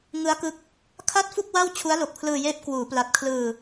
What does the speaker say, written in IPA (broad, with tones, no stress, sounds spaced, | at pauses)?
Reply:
ŋ ɯ˦˥ a̯ k ɯ˦˥ k̚ | kʰ a˥˩ t̚ f u˥˩ k̚ w a˥˩ w t͡ɕʰ u˦˥ a̯ l o˨˩ k̚ pʰ l ɯː˧ j eː˦˥ p̚ k w uː˩˦ p l a˨˩ t̚ kʰ l ɯː˧